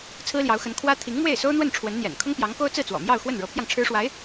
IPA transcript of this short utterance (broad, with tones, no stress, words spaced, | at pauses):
t͡sʰɹ̩˥ljɑ˧˥ʊ̯xə˧˥n kʰwä˥ t̪ʰi˧˥ŋmwe˥˩ɪ̯ so˥ʊ̯n̪wə˥˩n ʈ͡ʂʰwə˧˥nn̪jɛ̰˨˩n kʰʊ˥ŋpjɑ˧˥ŋko˥ʊ̯ t͡sɹ̩˥˩t͡swɔ̰˨˩ mjɑ˥˧ʊ̯ xwə˥˩nɻɤ˧˥pʰjɑ˧ŋ ʈ͡ʂʰɻ̩˥ʂwa˧˥ɪ̯